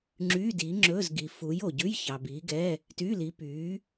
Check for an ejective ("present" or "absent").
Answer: absent